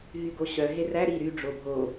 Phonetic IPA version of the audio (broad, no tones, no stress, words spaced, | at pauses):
ɦyɡoɕœ ɦeræ ɾi ɾy ɖ͡ʐobʱo